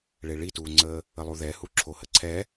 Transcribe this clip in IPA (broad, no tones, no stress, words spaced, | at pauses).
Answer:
ɭeɭituːŋ͡ǀəː | əlˠuðɛhu ǁʰohəǀʰɛ